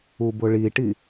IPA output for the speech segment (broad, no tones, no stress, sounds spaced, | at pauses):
u b ʊ ɭ i ʈ i